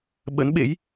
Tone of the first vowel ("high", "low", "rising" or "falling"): rising